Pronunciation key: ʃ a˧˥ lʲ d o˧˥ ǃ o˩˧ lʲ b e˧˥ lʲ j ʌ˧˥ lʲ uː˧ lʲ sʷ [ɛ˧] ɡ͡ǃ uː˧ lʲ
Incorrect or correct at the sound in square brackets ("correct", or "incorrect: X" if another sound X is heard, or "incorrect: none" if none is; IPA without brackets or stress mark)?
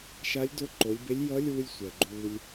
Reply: incorrect: ɛ˩